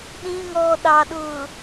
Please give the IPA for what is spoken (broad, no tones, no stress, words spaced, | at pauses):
ɗĩŋɔː ɗɑɗʊː